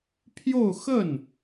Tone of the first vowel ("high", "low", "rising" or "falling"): falling